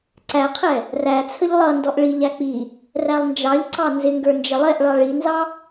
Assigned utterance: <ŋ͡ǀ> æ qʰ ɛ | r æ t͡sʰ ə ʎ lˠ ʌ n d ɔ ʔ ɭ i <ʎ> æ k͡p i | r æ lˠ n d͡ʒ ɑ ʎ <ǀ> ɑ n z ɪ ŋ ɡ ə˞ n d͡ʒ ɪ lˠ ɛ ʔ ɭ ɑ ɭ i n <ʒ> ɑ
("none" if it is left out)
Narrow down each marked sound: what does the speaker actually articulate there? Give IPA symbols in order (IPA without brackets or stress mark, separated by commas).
ǀ, ʎ, ǀ, z